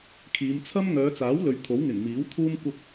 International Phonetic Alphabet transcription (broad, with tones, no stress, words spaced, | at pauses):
kʰiː˨˧mt͡sʰɐ˥m ŋœː˨˧t͡saː˨˥wlɵ˨ɥ t̪ʰo˨˥wŋɪ˨˩ŋmiː˨˥wt̪ʰuː˥m kʷɐ˧p̚